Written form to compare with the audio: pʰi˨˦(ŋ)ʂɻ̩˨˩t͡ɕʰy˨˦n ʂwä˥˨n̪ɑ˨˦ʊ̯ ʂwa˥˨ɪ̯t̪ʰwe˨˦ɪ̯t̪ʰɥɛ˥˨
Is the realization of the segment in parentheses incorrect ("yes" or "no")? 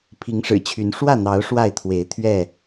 no